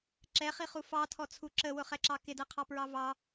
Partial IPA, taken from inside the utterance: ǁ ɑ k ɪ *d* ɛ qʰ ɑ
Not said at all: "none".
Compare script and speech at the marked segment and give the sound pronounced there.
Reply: d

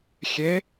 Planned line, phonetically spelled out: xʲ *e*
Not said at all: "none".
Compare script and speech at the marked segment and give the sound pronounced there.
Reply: e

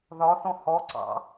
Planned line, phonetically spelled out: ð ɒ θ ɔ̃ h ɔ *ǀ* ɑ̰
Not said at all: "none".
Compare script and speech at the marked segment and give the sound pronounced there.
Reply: ǀ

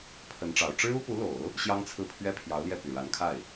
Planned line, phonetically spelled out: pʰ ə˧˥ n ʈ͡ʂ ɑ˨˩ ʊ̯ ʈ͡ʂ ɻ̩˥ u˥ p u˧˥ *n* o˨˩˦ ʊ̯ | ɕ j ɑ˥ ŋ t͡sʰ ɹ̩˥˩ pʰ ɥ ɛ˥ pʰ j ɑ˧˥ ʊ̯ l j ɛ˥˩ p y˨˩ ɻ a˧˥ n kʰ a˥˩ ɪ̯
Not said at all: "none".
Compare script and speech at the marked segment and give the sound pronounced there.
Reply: l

